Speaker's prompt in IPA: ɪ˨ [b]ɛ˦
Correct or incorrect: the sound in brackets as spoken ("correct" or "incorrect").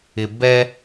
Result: correct